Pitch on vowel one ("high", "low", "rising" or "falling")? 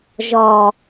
low